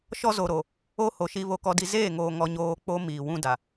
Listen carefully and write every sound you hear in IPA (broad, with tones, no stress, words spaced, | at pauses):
ʃɔ˦zo˨ɾo˨ | o˦ho˨ʃi˦ βo˦kɔ˦di˦ zeː˦˨ŋoː˨ŋɔ˨ ɲoː˦ k͡po˦miː˨ wũ˦da˨